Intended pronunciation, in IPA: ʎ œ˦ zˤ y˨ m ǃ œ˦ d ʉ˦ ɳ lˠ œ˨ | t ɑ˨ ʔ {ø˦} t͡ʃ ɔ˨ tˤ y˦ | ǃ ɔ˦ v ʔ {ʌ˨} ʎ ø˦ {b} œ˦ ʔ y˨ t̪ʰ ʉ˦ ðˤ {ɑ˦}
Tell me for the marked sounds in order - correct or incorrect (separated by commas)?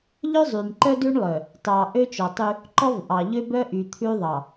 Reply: correct, incorrect, correct, incorrect